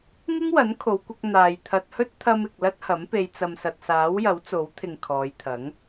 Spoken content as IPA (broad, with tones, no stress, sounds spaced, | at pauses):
ŋ ɪ˥ ŋ w ɐ˨˥ n kʰ o˨˧ w kʷ ɐ˧ k̚ n̪ aː˨ j t̪ʰ ɐ˧ t̚ h ɵ˥ t̚ t̪ʰ ɐ˧ m ɪ˨ k̚ l ɐ˥ t̚ h ɐ˨˥ m p e˧ j t͡s ɐ˨ m s ɐ˨ t̚ s aː˨˥ w j ɐ˨˥ w t͡s o˨˥ w t̪ʰ ɪ˨ ŋ kʰ ɔː˨˧ j t̪ʰ ɐ˨˥ ŋ